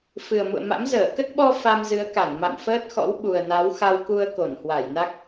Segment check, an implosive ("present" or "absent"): present